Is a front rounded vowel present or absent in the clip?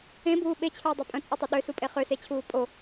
present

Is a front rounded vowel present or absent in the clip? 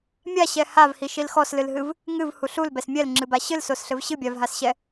absent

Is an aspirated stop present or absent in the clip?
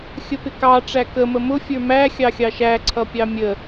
present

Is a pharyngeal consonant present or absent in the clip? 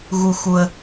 absent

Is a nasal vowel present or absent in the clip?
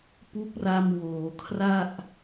absent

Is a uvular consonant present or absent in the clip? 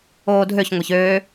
absent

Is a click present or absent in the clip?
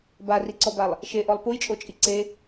present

